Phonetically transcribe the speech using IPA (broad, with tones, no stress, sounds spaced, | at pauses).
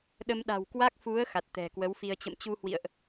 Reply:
ɗ ə˧ m ɗ a̤˨˩ w k w a˦˥ k̚ f u˨˦ ə̯ x a˨˩ t̚ t̪ ɛ̤˨˩ k w ə˨˦ w f i˧ ə̯ t͡ɕ ə̰˧˨ m t͡ɕ u˧ h w ḭ˧˨ ə̯ ʔ